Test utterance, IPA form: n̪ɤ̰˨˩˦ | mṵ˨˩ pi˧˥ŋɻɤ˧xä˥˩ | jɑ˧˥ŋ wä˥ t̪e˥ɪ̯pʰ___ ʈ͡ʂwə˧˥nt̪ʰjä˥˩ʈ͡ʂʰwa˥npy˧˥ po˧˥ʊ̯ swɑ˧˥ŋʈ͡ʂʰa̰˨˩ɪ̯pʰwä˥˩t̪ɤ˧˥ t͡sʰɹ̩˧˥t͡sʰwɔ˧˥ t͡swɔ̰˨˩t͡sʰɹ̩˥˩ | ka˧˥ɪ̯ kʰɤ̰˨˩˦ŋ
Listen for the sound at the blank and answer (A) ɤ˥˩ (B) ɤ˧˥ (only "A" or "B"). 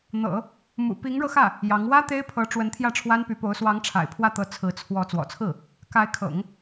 B